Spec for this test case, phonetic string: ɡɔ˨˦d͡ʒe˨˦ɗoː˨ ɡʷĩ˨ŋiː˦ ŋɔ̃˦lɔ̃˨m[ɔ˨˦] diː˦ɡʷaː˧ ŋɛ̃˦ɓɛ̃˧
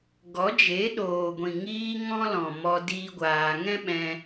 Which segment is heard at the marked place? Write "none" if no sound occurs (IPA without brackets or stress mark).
ɔ˧